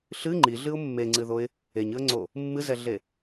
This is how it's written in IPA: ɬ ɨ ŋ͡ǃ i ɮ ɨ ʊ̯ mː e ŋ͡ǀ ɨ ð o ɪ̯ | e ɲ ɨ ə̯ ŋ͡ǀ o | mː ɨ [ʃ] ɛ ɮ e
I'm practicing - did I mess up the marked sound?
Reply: yes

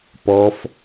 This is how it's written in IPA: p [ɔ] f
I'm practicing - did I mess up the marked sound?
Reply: no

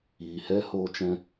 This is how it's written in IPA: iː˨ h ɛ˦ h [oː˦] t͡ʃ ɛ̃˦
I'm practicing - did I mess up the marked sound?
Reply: no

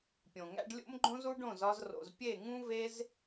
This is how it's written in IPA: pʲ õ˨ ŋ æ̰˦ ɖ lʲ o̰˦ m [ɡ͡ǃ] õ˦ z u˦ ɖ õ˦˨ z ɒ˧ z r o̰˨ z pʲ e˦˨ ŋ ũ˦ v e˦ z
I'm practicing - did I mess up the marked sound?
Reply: no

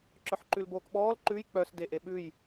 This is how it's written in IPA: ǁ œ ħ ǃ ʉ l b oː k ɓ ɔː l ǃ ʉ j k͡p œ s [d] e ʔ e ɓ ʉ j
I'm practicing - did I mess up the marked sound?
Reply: no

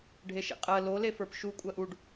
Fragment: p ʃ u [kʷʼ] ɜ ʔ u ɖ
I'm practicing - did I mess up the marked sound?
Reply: no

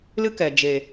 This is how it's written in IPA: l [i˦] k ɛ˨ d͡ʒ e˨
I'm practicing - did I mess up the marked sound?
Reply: yes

